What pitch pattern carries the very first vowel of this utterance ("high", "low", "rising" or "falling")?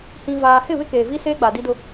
low